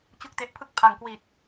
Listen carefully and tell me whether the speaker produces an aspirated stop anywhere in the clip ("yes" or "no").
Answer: yes